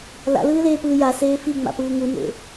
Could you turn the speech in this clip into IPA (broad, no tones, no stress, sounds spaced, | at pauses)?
l a̰ l ɯː l eː p ɯː j a s eː f i ŋ͡m a̰ p ɯː ŋ u n ḛ